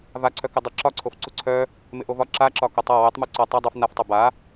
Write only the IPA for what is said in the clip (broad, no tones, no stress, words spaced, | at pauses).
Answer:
vaǀʰœ kɪdˤɪ ǁɒǀʰof ǀuǀʰœ | mɪʔovɒ ǁaǁɒ kotˤɒ wœtˤmu ǀɒ tˤa dˤœf naftˤo ba